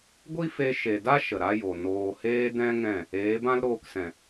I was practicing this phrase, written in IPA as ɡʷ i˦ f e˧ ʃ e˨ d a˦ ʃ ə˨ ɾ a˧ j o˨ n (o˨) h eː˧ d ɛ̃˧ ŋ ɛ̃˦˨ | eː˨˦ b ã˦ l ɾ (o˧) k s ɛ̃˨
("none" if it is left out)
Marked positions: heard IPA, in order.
oː˨, oː˧

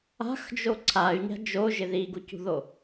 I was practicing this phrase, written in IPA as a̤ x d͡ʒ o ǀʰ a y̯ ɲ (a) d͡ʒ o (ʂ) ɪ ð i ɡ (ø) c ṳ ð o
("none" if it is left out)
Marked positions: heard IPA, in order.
a̤, ʒ, u

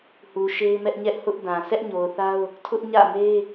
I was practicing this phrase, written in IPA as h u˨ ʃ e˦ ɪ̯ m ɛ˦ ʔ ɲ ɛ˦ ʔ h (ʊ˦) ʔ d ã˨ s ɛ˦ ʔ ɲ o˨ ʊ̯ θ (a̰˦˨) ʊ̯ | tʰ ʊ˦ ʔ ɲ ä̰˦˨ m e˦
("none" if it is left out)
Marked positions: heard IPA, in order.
ʊ˦, a˦

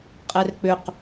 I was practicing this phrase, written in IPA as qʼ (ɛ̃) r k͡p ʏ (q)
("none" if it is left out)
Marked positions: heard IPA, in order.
ɛ, q

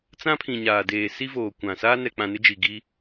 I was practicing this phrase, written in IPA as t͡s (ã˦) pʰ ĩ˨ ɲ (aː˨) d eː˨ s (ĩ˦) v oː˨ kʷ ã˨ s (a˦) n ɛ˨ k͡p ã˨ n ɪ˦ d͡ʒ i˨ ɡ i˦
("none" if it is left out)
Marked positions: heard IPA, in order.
ã˦, aː˨, i˦, aː˦

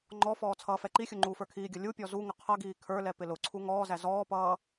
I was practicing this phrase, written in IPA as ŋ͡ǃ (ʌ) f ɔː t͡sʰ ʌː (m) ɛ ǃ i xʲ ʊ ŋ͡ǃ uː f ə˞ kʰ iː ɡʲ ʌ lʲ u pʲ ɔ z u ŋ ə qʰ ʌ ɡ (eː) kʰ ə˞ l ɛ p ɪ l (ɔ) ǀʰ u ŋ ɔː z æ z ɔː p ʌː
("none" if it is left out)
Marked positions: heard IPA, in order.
ɔ, f, iː, ʊ

